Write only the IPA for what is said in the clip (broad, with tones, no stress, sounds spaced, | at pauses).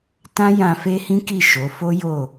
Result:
t ã˦ j ã˧ f e˦ h ĩ˦ k i˦˨ ʃ o˨˦ f o˦ j o˦˨